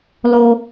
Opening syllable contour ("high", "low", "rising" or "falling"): high